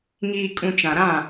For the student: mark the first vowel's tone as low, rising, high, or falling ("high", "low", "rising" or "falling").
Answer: low